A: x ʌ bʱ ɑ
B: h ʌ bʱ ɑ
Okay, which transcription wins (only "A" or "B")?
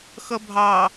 A